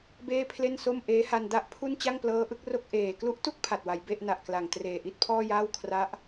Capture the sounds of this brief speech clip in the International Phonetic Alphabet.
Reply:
b eː˥˩ pʰ l e˥˩ n s o˥˩ m ʔ eː˦˥ h a˧ n d a˥˩ ʔ pʰ u˥˩ n t͡ɕ a˥˩ ŋ p l ɤː˦˥ ʔ ɯ˦˥ k̚ r o˥˩ k̚ ʔ eː˨˩ k l u˦˥ ʔ t u˥˩ k̚ pʰ a˨˩ t̚ w a˩˦ j b e˥˩ ʔ n a˨˩ ʔ k l a˨˩ ŋ t r eː˨˩ ʔ i˥˩ t̚ pʰ ɔː˥˩ j aː˥˩ w kʰ r a˦˥ ʔ

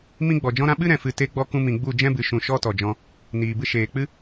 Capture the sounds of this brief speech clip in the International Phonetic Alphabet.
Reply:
m ĩ˦ ɡ͡b ɔ˨ d͡ʒ ɔ̃˦ ɾ ã˦ ɓ ɨ˦ ɾ ɛ̃˨ f ɨ˨ t e˦ ɡ͡b ɔ˦ k ũ˧ m ĩ˨ ɡ͡b u˦˨ d͡ʒ ɛ̃˦ b ɨ˨ ʃ ũ˨ ʃ ɔ˦ t ɔ˨ d͡ʒ ɔ̃˧ | n iː˨ b ɨ˧ ʃ eː˨ k͡p ɨ˦

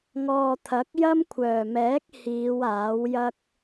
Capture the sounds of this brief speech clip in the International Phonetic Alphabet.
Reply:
ŋ ɔː˨ t̪ʰ ɐ˨˥ k̚ j ɐ˥ m kʷʰ œː˨˩ m ɛː˨˥ k̚ h iː˨˧ w aː˨˥ w j ɐ˥ k̚

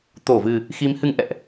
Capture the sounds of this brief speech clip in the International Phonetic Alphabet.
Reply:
t̪ o˧˩ v ɨ˨˩ | x i˨˦ m h ɨ˧ ŋ ʔ ɛ̰˧˨ ʔ

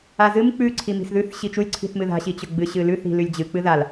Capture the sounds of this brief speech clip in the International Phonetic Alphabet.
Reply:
a z ɨ m k͡p ʉ ǀʰ i m i̤ s ð ʉ θ ɕ i t͡ʃ u lʲ ǀʰ i̤ θ m ɨ ð a̤ ɕ i t͡ɕ ɵ ɡ͡b ɨ ɕ ɨ l ʉ θ i̤ l ʉ lʲ d͡ʑ ɨ k͡p ɨ ð a l

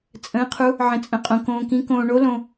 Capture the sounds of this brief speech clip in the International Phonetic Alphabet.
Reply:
t͡sʼ ə̃ː˨˥ qʰ u˨˥ | ʕ ə̃˨ t͡sʼ ə̃˨ qʼ õ˨ k õː˨ k ĩ˨˥ k õː˨ ɳ o˨˥ l õ˨

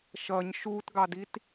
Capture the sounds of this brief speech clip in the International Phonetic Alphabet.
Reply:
ʃ ʌ ɲ ʃ u t ɡ ɑ d i t

